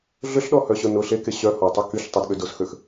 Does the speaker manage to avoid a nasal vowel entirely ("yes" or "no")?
yes